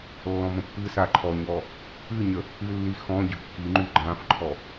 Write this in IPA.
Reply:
lː ɔ̃ m ə̃ pː ɨ s a ǃʰ ɔ ɲ ɔ | ɨ ɲ ə | ɨ lː i x ɔ̃ ɟ ʏ kː i ŋ͡ǃ y ɡ͡ǃ ã f ǃʰ ɔ

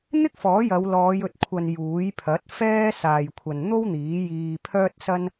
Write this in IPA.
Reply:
n̪ ɪ˥ k̚ f ɔː˨˥ j ɐ˨˧ w l ɔː˨˧ j ɵ˨ t̚ kʷʰ ɐ˨ n j uː˨˥ j pʰ ɐ˨˥ t̚ f ɛː˥ s aː˧ j kʷʰ ɐ˧ n n̪ o˥ w n̪ iː˨˥ j iː˧ pʰ œː˥ t̚ s ɐ˥ n

